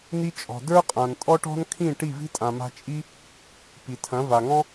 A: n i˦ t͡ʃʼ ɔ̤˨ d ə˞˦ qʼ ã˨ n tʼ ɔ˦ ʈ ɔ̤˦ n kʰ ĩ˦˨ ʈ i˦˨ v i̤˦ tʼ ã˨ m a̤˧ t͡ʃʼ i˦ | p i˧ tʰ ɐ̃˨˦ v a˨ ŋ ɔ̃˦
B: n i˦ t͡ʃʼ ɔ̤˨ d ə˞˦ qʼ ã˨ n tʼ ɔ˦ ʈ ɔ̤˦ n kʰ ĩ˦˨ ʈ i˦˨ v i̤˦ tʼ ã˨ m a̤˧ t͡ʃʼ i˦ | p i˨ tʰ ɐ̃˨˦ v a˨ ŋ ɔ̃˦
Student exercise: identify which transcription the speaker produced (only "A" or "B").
B